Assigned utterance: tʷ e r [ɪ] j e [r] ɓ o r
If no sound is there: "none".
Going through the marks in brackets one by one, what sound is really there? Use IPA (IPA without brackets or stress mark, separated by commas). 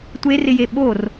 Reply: ɪ, none